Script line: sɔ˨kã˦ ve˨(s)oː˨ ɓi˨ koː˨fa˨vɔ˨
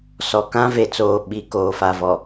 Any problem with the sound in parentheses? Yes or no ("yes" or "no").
yes